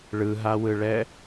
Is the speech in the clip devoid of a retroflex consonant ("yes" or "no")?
no